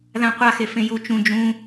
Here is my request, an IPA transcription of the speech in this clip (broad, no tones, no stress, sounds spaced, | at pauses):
ð ã qʷ a x e f ẽ j u t͡ʃ ũ d͡ʒ ũ